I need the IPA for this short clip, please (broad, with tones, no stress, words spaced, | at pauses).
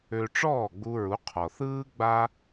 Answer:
ø˧ʈ͡ʂɔː˥˩ɡ͡bu˧ɹu˩˥ qʰɔ˩θɯː˥ ɡ͡ba˥